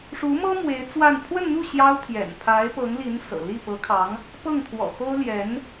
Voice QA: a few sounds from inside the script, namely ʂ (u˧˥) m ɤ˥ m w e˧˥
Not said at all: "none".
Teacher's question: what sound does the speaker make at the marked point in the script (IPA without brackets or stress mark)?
u˧˥